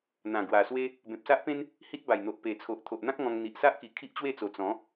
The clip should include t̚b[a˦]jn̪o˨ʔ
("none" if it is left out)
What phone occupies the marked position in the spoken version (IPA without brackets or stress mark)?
a˨˩